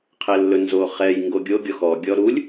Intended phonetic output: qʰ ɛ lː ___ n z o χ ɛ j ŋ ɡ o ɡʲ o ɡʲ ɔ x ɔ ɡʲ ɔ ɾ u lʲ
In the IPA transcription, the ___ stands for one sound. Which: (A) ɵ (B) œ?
A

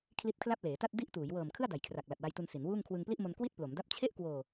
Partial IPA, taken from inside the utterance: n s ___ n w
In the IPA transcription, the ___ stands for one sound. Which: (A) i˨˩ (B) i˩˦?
B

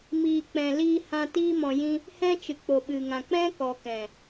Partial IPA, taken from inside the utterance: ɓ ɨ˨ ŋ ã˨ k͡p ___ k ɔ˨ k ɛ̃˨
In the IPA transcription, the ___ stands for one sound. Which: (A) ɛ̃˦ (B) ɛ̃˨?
A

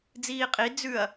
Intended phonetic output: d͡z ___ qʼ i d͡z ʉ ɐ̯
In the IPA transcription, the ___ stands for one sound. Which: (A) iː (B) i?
A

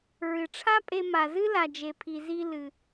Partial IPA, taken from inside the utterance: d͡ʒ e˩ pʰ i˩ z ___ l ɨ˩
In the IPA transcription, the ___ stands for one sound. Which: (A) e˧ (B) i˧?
B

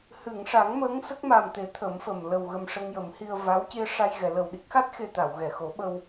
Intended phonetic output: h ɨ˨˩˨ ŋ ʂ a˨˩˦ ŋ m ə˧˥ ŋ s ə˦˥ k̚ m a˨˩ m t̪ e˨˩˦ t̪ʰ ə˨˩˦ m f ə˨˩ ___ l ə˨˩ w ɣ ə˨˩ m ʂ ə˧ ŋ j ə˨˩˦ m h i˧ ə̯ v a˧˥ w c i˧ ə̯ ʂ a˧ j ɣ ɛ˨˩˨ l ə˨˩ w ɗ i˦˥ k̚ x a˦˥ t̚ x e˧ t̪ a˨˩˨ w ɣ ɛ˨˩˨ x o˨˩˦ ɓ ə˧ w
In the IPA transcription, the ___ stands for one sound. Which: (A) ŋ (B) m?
B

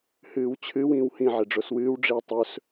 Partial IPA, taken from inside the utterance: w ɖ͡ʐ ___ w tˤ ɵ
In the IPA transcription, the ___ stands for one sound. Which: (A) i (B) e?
A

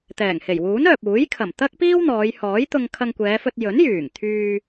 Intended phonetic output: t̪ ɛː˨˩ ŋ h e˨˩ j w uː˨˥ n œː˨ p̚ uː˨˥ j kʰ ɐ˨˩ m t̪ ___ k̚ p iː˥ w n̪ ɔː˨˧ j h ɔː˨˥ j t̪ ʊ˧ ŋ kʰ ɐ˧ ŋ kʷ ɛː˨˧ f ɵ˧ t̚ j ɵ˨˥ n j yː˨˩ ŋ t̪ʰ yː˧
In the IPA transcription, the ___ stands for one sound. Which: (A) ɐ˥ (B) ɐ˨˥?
A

